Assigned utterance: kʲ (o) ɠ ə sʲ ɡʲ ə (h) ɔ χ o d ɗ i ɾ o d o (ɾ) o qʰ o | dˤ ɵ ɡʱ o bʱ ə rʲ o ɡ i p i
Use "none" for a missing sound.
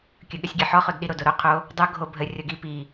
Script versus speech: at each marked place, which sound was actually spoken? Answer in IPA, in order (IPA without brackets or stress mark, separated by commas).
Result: ɵ, ħ, ɾ